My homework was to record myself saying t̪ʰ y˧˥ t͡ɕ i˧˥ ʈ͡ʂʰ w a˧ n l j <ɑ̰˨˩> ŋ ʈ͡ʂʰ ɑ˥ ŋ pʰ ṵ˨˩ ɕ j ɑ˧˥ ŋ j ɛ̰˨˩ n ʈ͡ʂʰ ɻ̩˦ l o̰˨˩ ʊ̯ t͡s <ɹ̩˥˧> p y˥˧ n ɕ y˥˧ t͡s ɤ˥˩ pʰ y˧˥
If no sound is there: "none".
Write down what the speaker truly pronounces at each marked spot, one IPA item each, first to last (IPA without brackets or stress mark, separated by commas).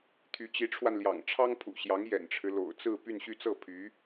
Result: ɑ̰˨˩, ɹ̩˥˧